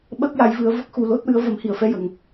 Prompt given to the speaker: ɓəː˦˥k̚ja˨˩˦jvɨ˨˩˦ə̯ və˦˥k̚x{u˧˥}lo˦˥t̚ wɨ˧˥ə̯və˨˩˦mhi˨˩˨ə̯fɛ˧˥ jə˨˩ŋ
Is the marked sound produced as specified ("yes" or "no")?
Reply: no